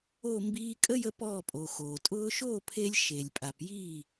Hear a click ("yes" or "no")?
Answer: no